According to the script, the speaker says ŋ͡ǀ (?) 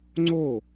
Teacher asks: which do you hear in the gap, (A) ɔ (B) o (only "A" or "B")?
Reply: B